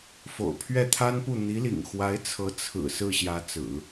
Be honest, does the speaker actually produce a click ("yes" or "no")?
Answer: no